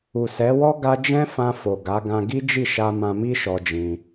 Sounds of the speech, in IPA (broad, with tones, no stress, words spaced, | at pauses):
u˨sɛ˨˦wɔ˦ ɡa˧ d͡ʒɛ̃˦fã˧fo˨ ɡa˨˦ ɡã˧ɡi˦ d͡ʒi˦˨ʃa˧ mã˧mi˦ʃɔ˧ d͡ʒĩ˧